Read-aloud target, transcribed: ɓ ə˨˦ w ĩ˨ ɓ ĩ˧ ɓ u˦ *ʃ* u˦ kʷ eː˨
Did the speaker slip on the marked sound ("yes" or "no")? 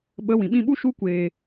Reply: no